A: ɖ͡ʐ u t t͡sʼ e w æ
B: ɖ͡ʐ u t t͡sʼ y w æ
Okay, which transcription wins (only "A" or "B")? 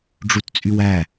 B